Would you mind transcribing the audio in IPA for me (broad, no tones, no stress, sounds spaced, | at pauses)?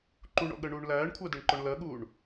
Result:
ǃ u ɳ ɔ̰ ɠ ɜ ɳ uː ɳ l æː ɳ kʷʰ ɜ d ɛ ɳ ǃ ɔ ɳ l ɜ ɠ uː ɳ